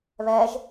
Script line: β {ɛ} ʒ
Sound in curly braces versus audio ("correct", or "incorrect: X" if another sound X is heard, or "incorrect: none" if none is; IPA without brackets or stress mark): correct